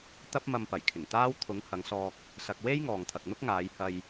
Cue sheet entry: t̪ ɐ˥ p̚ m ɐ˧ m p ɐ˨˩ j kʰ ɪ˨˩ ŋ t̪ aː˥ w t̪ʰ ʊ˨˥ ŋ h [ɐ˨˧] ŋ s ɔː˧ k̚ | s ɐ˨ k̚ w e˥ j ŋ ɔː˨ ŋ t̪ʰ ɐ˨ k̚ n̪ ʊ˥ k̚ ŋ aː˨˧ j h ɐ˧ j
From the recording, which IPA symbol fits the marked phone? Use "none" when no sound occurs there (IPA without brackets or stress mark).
ɐ˨˧